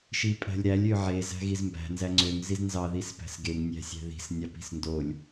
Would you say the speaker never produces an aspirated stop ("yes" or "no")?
yes